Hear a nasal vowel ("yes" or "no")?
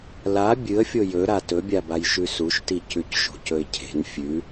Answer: no